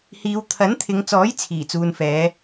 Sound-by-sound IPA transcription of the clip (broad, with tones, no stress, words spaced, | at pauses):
hiː˨˧wt̪ʰɐ˨˥nt̪ʰɪ˨˧ŋt͡sɔː˨˥j t͡sʰiː˨˩t͡suː˨nfɛː˨˧